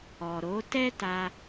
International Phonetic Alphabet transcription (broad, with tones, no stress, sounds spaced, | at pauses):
ɔ˨ ɾ o˨˦ t ɛ˦ t a˧